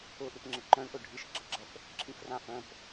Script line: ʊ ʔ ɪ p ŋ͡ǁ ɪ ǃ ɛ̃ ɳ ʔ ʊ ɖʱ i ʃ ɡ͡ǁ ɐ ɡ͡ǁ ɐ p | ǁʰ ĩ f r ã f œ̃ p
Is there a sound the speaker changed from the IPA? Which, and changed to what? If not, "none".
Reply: ɛ̃ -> œ̃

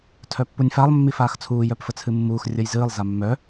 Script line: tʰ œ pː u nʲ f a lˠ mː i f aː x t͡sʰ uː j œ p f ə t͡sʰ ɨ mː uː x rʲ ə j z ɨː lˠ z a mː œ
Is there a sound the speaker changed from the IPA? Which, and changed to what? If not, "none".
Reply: none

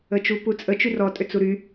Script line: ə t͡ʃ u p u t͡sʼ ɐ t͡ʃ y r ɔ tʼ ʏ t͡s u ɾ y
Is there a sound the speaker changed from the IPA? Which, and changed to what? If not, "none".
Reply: ɐ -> ə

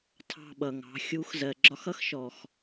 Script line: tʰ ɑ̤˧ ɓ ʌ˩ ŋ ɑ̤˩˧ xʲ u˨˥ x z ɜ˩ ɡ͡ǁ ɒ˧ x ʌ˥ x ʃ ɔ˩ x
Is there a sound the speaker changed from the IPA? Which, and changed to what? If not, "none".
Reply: none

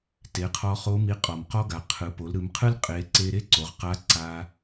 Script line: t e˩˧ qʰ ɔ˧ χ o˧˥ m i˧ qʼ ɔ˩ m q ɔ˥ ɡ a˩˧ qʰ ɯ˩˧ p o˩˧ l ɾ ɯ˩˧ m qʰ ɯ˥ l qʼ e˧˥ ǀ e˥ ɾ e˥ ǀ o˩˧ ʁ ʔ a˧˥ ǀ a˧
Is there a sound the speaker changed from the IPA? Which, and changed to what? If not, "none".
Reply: ʔ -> q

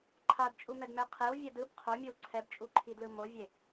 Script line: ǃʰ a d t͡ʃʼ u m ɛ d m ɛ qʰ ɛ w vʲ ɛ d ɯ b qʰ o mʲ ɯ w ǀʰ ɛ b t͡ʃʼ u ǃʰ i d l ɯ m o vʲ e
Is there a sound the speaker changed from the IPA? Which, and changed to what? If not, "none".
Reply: none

